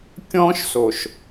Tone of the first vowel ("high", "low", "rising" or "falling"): high